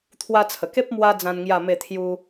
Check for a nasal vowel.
present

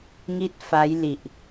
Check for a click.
absent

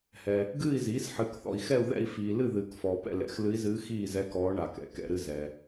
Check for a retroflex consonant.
present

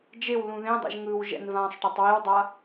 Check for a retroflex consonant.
present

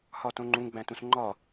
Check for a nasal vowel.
present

